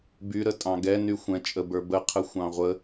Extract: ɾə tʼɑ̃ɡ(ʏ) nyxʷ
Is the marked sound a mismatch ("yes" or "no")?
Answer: yes